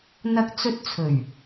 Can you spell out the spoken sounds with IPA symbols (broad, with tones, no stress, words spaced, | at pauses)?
n̪ɐ˧k̚ t͡sɵ˥t̚ t͡sʰɵ˨˩ɥ